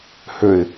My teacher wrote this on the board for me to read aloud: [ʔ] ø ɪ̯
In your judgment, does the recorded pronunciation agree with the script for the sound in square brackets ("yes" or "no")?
no